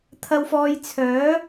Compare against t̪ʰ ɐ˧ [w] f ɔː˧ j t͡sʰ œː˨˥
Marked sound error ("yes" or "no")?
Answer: no